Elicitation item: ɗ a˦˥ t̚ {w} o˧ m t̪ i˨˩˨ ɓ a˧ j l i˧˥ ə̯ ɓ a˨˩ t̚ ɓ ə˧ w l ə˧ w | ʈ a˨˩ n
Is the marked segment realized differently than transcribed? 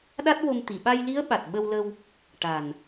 no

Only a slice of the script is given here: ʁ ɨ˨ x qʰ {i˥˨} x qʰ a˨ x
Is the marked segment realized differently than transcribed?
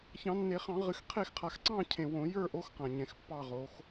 yes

